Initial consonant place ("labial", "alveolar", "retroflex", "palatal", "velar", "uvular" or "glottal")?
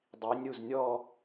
alveolar